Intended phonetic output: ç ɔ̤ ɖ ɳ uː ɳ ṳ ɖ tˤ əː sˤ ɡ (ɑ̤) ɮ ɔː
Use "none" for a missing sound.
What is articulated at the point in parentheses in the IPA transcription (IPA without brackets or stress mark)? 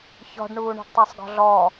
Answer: ɔ̤